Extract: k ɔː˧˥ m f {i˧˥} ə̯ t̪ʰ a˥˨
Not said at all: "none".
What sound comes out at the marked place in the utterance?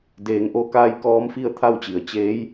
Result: i˥˨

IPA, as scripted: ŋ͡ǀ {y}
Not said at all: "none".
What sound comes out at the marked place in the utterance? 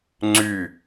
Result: y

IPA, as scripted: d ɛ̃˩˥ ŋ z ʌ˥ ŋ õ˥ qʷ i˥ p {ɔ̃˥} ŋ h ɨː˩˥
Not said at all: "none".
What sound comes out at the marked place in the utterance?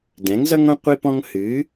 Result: ɔ̃˥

